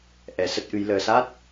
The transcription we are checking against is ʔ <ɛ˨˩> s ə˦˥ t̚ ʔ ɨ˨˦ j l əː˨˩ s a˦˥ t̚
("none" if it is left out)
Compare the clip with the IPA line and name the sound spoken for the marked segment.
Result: ɛ˨˩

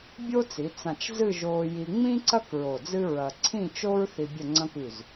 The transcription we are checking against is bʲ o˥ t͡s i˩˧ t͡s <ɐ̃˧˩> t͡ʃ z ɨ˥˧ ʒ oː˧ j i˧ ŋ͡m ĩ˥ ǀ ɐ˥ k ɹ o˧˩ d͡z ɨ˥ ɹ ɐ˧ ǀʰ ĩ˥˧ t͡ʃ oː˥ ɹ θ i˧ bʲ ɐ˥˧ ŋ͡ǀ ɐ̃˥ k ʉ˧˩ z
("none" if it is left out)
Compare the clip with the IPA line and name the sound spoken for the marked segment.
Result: ã˧˩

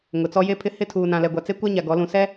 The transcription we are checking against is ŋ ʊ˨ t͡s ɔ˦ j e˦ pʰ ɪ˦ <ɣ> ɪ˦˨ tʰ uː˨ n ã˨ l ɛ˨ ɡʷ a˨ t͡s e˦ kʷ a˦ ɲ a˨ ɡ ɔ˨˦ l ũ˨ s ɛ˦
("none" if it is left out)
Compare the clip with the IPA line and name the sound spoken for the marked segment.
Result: h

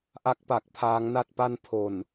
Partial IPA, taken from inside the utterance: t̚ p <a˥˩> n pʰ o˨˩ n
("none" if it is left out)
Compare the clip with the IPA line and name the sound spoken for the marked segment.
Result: a˥˩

